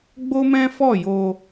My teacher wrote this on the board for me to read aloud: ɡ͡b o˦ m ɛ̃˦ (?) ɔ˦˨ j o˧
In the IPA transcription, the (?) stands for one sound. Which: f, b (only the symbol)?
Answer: f